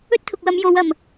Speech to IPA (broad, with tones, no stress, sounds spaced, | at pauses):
ɵ˥ t̚ t̪ʰ ʊ˨ k̚ w ɐ˨˧ m j o˨˧ w ɐ˨˩ m